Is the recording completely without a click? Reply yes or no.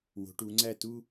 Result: no